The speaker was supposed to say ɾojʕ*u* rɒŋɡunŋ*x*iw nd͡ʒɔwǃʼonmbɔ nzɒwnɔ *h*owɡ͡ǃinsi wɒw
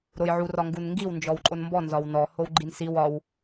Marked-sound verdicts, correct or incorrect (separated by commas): correct, incorrect, correct